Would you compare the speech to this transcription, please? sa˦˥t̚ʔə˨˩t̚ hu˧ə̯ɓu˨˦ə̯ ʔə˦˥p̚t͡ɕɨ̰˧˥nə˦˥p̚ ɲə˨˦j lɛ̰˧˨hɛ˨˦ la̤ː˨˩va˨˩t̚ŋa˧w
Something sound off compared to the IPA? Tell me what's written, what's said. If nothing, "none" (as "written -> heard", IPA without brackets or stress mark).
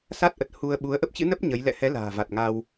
none